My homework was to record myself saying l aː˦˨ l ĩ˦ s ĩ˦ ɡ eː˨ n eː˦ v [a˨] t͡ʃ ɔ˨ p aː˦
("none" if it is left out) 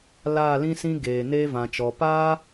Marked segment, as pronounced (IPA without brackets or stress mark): ã˨